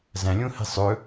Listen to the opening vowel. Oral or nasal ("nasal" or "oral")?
nasal